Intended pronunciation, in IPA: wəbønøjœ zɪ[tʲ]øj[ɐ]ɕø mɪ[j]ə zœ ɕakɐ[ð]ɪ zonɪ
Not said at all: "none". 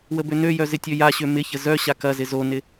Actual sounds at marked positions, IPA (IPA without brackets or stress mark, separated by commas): tʲ, a, ç, z